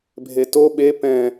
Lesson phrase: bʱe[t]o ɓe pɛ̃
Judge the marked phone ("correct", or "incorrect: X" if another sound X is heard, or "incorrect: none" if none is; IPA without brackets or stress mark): correct